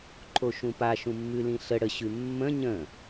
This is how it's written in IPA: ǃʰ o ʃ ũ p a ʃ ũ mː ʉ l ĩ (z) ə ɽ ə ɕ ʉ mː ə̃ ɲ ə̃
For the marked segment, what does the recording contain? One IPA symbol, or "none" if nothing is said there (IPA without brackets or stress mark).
ɬ